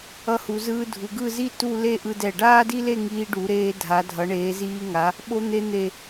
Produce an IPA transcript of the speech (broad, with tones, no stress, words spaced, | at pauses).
ʌ˧hu˩˧zɯː˧ dʱu˩˧ɡɯ˥˧ zi˥˧ tu˥˧le˥˧ ʔɯ˧ dɛ˧˩ɖaː˥di˥le˥˧ ŋiː˧ɖu˩˧ɾeː˧ dʱa˩˧dʱʌ˩˧ɳeː˩˧ziː˧ ŋa˩˧ | ɓo˧n̪e˧n̪e˧˩